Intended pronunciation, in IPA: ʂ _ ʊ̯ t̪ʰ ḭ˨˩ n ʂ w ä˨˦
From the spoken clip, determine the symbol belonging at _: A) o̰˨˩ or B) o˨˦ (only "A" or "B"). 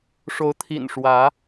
B